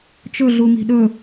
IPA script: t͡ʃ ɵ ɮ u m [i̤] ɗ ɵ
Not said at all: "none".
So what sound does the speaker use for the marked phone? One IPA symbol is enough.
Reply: i̤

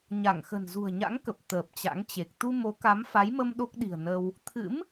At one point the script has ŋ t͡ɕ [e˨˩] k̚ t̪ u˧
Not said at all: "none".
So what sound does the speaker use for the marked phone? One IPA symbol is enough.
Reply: e˨˩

